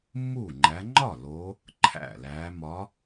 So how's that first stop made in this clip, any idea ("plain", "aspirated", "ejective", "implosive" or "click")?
click